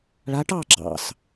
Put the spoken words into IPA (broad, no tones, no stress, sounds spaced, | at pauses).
ɭ a ʈ ɑ ɡ͡ǁ ɑ̰ s